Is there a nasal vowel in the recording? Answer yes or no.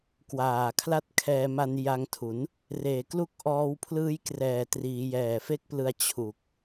no